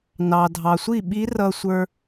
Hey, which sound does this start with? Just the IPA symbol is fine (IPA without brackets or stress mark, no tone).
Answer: n